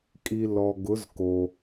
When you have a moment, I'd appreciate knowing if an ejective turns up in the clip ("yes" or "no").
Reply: yes